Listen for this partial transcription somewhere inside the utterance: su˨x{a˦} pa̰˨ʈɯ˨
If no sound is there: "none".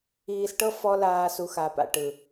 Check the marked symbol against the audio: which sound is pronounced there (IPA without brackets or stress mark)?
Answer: a˨